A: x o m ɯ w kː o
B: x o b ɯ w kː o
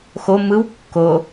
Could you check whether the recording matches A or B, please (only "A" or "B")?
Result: A